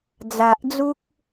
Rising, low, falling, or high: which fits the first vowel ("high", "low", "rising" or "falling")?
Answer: low